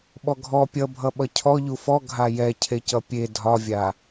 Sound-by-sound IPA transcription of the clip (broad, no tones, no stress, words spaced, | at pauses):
ɓɔɡʱɔ pʲʌbʱʌ ɓʌcʰɔ ʎufɔ ɡʱajɛcʰecʌ pʲe dʱɒvʲa